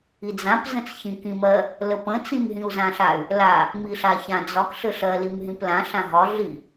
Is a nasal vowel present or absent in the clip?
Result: present